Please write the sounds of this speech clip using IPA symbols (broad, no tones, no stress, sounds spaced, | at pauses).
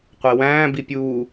qʷ e w æ̃ː b i pʲ uː